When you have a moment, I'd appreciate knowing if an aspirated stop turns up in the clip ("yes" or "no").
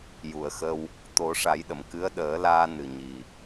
no